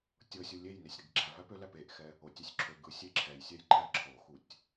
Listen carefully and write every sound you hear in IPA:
tʲ ɤ sʲ u lʲ e j n e sʲ ɾ i ɡ ɡ͡ǁ æ v æ p ø l æ p e ʔ x ɛ | o tʲ ø sʲ ǁʰ ø ɡ ɯ sʲ e ǁʰ ɛ j sʲ ɛ j ǃ æ ǁʰ o x u tʲ

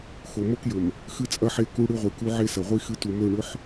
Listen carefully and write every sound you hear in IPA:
x o˨ m o˦ k j ɵ˨ m | x ɨ˦ t͡sʼ ɐ˦ ħ e˦˨ k u˦ ɽ ɨ˦ ʁʷ i˨ k u˦ ʕ e˦ s ɐ˨ ʁʷ i˦ x ɨ˦ t u˨ m ɵ˦˨ ɳ ɵ˦ ħ

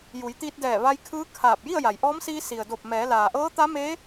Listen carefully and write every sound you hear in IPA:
j u˩˧ j t̪ iː˧ t̚ d ɛː˧˩ ʋ a˧ j kʰ ɯː˧˥ kʰ aː˧˩ p̚ j i˥˨ ə̯ j a˩ j ʔ ɔː˧˥ m s iː˧ s i˩ ə̯ d o˧˩ p̚ m ɛː˩˧ l aː˩ ʔ ɤː˧˥ t̪ a˧˥ m eː˧˥

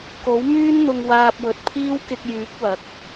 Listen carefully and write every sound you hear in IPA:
k o˨˥ w m yː˥ n n̪ ʊ˧ ŋ w aː˧ p̚ w ɵ˨ t̚ pʰ iː˥ w k ɪ˧ k̚ j yː˨˥ k̚ w ɐ˨˥ k̚

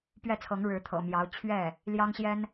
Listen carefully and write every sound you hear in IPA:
p ɥ ɛ˥˩ t͡sʰ ɤ˧˥ ŋ ɻ ɻ̩˧˥ t̪ʰ ɤ̰˨˩ m j ɑ˧˥ ʊ̯ t͡ɕʰ ɥ ɛ˥˩ | l j ɑ˥ ŋ ɕ j ɛ˥ n

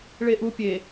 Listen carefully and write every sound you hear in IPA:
ɭ e ʔ u pʲ e

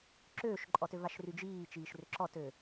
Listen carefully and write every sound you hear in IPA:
ǁ øː ʃ ǃʼ ɔ t ø v a ʃ r y d͡ʒ iː t͡ʃ iː ʃ r ʏ ǁ ɔ t ø

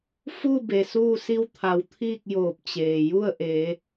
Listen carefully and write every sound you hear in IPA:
f u˥˨ b e˩ s uː˥˨ s i˥˨ w t̪ʰ a˩˧ w t̪ʰ iː˥˨ k̚ j oː˧˩ p̚ t͡ɕ eː˩ j u˥˨ ə̯ ʔ e˩˧

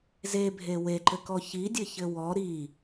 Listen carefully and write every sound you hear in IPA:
z e bʱ e w e ǃ ɘ k ɔ ç i dʲ ɘ ç ɘ w ɔ ɾ i

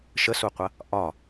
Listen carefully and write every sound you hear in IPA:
ʃ ə s u qʷ ɐ | ʔ ɒ

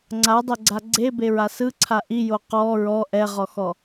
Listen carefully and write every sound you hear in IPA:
ŋ͡ǀ a dˤ ɛ ɡ͡ǀ a ɡ͡ǀ e b e ɹ a s ɯ ǀʰ a ʔ i j o q ɔ ɹ ɔ ʔ ɛ ʁ ɔ x ɔ

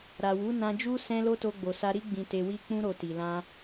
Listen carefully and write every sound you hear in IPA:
ɾ a˨ w u˨˦ n ã˧ d͡ʒ u˦ s ɛ̃˦ l o˦ t o˧ ɡ͡b o˨ s a˧ ɾ i˦ ɡ͡b ĩ˧ t e˧ w i˦ k͡p ũ˧ ɾ o˨ t i˨ l ã˧

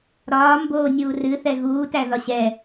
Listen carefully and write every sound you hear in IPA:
ɾ ɒː m b oː nʲ uː r ɨ θ ɛ ɣ uː t æ ð ɒ ɕ ɛ

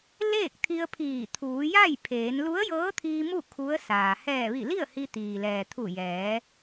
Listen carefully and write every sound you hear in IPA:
l eː˥˨ k̚ t̪ʰ i˧ ə̯ pʰ iː˧˩ t̪ʰ uː˩˧ j a˥˨ j pʰ eː˩˧ n l u˧˥ ə̯ j ɤː˧˥ t̪ʰ iː˧ m u˥˨ kʰ u˧˥ ə̯ s aː˩ h ɛː˧˩ ʋ i˧˩ l i˥˨ ə̯ h i˧ t̪ iː˩ l ɛː˩ t̪ʰ u˧˩ j ɛː˩˧

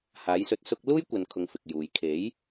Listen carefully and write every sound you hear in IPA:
h aː˨˥ j s ɵ˧ t̚ s ʊ˥ k̚ l uː˥ j kʷ ɐ˨ n kʰ ʊ˨ ŋ f ɪ˨ k̚ j uː˨˧ j kʰ e˨˥ j

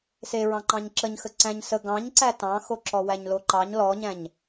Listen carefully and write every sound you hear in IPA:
s e ɹ ɑ̃ ǃ ɑ̃ ɲ ǁ ə ɲ x ə ǀ æ̃ ɲ s ə ɡ ɑ̃ ɲ ǀ æ t ɑ̃ x o ǁ ɔ w æ ɲ l o ǃ ɑ ɲ l ɔ ɲ æ̃ ɲ

